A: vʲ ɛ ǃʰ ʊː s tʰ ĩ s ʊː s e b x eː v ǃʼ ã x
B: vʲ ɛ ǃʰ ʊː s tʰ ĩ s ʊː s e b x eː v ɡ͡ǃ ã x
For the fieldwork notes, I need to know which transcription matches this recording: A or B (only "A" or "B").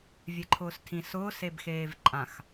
A